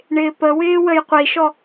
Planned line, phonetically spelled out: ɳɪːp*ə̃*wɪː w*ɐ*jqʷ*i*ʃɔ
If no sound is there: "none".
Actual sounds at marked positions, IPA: ə, ə, i

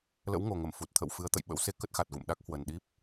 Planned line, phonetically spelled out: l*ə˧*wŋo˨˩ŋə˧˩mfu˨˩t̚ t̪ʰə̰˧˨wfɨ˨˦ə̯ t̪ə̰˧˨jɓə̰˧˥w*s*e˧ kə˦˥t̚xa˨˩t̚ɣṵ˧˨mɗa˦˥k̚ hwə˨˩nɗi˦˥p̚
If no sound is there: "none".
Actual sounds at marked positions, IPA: ə̰˧˥, s

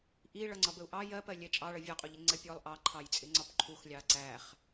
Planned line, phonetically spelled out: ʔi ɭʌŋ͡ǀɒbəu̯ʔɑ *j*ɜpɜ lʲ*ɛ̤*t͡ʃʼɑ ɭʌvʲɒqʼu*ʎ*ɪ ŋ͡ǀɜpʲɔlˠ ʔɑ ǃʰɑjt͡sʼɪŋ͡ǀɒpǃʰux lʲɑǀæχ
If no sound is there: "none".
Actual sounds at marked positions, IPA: j, ɛ, ʎ

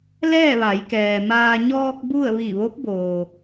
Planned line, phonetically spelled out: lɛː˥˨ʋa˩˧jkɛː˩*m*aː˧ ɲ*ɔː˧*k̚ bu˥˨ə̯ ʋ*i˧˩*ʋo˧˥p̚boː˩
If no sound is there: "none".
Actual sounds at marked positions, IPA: m, ɔː˧, i˧˩

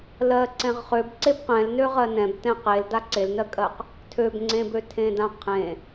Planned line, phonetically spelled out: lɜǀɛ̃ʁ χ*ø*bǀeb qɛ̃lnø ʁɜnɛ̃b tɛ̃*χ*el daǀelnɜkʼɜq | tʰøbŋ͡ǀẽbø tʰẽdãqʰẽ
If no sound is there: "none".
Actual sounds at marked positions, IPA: ø, q

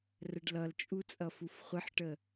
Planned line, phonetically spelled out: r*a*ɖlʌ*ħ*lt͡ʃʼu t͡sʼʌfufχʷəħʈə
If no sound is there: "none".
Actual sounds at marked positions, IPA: ə, none

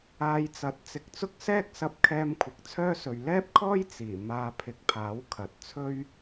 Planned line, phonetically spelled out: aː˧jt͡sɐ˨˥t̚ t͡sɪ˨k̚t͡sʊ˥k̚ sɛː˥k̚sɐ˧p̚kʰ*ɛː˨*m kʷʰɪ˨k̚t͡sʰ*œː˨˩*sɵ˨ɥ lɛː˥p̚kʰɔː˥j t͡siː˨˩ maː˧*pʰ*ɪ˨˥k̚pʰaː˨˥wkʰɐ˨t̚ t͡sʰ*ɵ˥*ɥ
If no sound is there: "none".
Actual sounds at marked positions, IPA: ɛː˧, œː˥, pʰ, ɵ˥

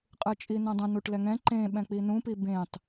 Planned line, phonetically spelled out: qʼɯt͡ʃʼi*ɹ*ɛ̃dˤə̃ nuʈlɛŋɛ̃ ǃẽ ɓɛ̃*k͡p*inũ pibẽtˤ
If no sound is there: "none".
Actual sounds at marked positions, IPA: n, k͡p

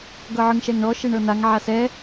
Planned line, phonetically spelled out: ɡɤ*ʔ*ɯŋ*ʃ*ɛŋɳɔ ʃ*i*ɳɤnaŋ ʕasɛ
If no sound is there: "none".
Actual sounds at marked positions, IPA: ʕ, ʃ, e

